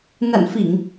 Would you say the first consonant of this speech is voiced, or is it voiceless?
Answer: voiced